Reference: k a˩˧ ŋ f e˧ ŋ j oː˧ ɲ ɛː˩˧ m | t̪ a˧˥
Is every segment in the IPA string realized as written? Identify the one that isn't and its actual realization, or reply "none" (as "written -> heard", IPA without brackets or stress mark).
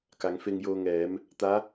ɲ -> ŋ